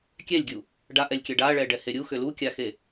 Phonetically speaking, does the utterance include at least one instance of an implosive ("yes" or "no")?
no